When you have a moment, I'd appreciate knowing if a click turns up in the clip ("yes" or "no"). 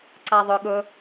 yes